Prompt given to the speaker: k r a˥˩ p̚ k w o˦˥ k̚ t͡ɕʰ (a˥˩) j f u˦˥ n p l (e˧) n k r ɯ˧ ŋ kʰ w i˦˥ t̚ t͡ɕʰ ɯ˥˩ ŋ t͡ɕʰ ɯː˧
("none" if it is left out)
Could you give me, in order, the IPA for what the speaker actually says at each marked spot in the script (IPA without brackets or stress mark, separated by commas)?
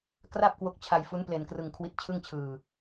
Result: a˧, e˧